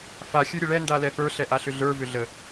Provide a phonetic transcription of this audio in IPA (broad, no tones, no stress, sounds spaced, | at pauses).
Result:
f a xʲ ə˞ ɾʲ ə ɭ ɛ n d a l ɛ f ə˞ ɬ ɛ ʔ a ɬ ʏ ɮ ə˞ v ʏ ɮ ə